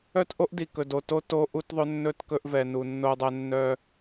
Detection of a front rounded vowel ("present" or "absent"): present